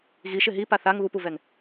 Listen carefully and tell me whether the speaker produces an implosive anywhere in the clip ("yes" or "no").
no